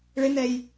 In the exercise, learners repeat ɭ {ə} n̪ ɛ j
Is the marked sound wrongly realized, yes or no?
yes